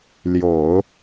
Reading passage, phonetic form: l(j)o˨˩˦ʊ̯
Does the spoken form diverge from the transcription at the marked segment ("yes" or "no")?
no